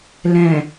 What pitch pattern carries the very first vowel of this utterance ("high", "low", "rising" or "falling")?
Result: low